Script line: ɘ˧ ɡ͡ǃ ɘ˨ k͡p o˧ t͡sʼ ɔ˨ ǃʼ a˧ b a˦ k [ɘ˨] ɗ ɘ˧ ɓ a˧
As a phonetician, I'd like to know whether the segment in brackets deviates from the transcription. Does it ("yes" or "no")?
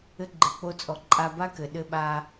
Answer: no